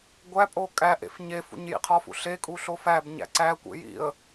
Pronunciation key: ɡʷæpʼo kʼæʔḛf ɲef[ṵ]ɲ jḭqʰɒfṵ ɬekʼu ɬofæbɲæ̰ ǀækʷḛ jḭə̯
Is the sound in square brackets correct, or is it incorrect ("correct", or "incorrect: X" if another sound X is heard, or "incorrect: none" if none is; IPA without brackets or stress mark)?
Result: correct